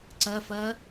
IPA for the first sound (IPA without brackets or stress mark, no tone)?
ǀ